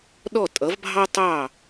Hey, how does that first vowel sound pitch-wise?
falling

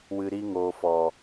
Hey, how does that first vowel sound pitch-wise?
low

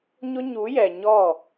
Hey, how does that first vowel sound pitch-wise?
high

